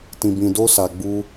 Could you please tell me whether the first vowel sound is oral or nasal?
nasal